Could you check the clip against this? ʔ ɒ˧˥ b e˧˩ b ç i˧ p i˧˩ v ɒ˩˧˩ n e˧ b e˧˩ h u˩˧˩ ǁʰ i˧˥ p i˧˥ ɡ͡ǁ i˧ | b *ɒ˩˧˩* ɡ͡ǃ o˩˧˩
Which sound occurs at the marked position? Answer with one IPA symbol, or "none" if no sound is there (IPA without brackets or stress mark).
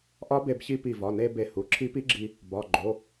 ɒ˩˧˩